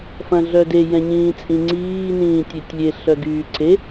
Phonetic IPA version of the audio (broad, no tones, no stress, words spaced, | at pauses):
fɐ̃ɮœde jɛ̃ɲĩːt͡sʼĩŋ͡ǀiː nĩːtʲetʲlʲe ɬœɡyːǀʰe